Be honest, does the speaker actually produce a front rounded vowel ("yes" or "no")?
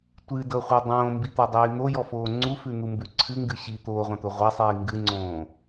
no